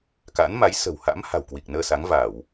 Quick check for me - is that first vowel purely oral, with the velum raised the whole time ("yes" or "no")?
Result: yes